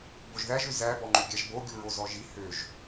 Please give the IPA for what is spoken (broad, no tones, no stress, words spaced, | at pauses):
boʒðæʒø zæbɔŋ͡ǃø ɡʲæʒboɡʲu ɹozɔʒi høʒ